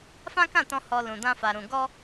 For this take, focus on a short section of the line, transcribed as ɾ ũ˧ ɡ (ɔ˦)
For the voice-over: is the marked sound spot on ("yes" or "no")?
yes